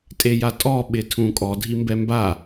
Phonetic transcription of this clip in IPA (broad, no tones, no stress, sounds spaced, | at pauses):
tʼ e j a tʼ ɔ ɓ ɪ tʰ ũ kʼ ɔ dʱ i m b ɛ m b a